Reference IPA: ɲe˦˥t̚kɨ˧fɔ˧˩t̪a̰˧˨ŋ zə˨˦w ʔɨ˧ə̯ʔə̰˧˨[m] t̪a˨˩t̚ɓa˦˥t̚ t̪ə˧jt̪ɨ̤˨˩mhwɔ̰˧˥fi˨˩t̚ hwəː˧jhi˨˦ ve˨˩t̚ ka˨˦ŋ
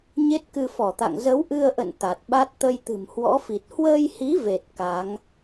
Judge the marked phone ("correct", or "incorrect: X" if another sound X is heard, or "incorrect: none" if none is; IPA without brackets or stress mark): incorrect: n